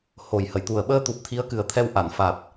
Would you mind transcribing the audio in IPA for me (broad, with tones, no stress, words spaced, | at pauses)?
ho˨˩jhə˨˩˨jt̪u˨˩ə̯ ɓəː˧t̪u˨˩p̚ t̪ʰi˧˥ə̯kɨ˨˩ə̯t̪ʰɛ˧w ʔa˨˩˨nfa˨˩t̚